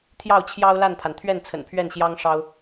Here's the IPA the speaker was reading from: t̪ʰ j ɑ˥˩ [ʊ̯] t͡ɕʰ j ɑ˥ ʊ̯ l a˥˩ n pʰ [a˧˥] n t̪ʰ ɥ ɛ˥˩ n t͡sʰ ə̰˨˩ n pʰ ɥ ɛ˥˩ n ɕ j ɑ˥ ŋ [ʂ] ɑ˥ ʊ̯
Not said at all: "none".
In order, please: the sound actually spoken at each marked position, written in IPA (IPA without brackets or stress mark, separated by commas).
ʊ̯, a˩, ʂ